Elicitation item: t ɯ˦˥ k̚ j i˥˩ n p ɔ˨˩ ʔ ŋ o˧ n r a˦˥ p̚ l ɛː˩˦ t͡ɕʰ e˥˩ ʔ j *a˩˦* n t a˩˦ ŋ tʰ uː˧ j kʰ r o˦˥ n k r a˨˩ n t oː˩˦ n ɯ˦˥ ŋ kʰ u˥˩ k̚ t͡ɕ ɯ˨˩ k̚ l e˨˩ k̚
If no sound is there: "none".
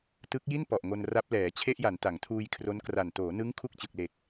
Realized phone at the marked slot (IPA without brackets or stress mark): a˩˦